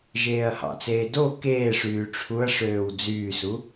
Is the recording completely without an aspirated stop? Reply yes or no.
no